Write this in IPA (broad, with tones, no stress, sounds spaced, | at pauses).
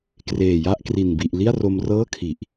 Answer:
k r eː˨˩ j a˥˩ ʔ k r i˨˩ n b i˨˩ ʔ l i˥˩ a̯ r o˧ m r ɤː˥˩ kʰ i˨˩ ʔ